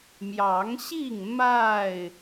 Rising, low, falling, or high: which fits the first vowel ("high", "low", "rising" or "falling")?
rising